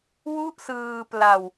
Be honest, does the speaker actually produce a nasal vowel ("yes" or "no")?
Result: no